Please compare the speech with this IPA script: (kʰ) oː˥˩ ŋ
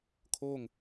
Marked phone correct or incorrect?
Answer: correct